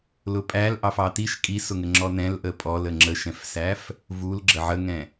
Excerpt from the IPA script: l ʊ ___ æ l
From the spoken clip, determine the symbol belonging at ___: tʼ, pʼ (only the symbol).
pʼ